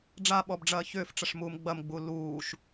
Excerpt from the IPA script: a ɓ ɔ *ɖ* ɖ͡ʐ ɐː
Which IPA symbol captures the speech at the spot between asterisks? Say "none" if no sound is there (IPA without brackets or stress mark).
b